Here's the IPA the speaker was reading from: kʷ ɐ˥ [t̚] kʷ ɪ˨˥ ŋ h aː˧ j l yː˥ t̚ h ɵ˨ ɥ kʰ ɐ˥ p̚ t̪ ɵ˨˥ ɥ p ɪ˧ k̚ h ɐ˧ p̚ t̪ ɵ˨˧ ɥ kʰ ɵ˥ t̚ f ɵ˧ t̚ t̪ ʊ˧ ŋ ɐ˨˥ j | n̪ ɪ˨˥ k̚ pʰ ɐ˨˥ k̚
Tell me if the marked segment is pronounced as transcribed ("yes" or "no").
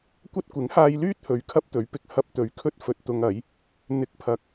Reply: yes